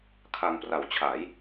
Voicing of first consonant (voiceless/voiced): voiceless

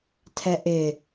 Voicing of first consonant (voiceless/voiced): voiceless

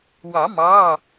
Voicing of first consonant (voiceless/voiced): voiced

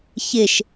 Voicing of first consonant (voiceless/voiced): voiceless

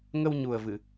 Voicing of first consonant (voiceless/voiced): voiced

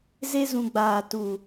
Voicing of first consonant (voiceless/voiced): voiced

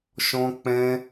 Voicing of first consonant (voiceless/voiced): voiceless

